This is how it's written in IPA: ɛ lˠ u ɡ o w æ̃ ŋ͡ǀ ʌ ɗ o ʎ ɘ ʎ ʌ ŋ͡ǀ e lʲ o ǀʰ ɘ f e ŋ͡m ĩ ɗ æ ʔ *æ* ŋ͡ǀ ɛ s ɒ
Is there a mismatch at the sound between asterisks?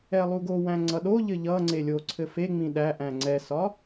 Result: yes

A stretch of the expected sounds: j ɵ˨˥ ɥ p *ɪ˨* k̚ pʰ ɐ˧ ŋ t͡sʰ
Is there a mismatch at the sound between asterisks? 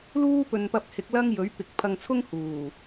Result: no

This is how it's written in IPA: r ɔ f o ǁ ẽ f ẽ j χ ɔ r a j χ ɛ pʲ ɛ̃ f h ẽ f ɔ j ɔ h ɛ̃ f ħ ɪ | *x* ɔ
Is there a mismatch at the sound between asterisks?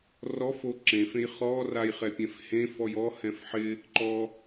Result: yes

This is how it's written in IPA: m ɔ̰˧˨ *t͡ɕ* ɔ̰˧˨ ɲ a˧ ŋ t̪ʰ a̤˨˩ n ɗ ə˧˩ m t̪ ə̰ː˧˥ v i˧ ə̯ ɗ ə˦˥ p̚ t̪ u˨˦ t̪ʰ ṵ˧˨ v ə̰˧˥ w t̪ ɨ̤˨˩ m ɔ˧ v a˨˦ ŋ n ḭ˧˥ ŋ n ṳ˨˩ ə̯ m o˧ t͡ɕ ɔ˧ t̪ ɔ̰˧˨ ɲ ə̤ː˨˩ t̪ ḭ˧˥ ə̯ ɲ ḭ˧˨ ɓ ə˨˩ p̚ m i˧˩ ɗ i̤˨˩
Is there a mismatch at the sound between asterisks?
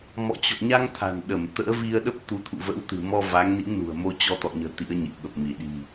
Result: no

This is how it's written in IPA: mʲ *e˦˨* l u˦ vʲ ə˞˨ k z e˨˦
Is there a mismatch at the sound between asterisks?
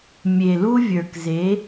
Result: yes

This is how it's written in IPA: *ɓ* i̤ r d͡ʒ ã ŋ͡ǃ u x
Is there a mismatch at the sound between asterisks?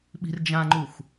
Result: no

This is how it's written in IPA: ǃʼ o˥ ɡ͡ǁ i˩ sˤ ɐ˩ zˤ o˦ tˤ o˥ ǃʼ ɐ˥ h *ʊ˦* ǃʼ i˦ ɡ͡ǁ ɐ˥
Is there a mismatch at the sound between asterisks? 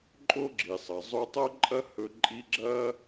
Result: yes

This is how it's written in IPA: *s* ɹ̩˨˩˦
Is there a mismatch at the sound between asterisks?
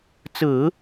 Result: yes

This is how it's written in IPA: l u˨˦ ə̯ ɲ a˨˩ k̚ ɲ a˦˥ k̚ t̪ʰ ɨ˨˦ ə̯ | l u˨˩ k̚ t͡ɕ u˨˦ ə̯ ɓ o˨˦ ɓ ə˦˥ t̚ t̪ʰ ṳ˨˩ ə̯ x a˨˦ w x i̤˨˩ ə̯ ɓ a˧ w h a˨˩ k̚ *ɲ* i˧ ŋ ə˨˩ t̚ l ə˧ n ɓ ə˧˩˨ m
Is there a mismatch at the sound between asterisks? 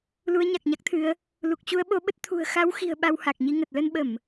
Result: no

